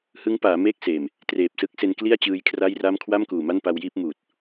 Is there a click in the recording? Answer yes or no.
no